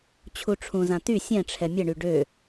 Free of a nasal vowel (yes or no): no